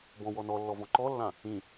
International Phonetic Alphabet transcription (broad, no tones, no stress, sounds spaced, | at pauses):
b ɔ̃ w ɔ n ɔ lː ɔ v ɔ̃ ǃ ɔ lː ã | ĩ